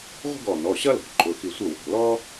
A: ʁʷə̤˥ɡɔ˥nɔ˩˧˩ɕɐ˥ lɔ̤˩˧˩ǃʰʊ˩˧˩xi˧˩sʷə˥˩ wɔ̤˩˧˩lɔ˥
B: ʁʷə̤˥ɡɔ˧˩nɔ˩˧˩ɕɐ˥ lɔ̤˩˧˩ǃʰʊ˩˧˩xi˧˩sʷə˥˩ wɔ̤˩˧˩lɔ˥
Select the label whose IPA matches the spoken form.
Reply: B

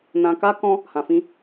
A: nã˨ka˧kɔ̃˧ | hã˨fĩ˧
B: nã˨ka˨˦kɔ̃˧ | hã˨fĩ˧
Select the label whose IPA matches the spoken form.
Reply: A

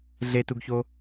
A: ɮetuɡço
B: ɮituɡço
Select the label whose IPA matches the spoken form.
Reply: A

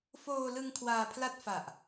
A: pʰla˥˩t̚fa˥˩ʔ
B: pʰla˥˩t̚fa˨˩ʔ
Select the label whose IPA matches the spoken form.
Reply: B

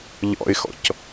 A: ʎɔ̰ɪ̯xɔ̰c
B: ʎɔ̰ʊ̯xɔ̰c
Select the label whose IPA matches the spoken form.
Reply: A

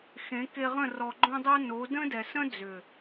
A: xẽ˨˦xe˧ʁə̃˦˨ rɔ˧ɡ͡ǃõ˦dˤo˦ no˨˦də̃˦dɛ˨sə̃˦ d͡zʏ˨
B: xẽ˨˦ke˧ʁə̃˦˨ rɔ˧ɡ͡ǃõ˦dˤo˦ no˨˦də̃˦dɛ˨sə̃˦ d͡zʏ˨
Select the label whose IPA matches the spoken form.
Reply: B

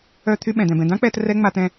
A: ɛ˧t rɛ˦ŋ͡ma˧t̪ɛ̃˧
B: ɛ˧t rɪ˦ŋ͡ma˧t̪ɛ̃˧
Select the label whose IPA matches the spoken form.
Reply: A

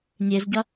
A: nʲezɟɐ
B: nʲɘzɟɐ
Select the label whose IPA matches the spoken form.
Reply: A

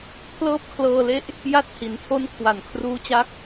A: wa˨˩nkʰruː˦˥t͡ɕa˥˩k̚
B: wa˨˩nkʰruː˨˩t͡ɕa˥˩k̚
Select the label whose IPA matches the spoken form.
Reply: A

